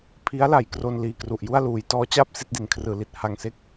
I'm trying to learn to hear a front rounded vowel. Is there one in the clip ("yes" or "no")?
no